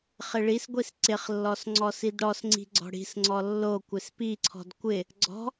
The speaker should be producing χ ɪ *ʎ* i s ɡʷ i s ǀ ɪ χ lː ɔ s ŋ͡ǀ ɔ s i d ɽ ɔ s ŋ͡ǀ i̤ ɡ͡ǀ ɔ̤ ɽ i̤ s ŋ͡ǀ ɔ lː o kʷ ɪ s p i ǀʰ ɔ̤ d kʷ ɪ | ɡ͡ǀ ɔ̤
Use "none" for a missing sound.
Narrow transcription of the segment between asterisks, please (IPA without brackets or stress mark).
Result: ɭ